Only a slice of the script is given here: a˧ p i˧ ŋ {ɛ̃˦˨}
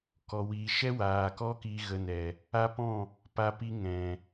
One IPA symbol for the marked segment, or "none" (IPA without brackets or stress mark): ɛ̃˨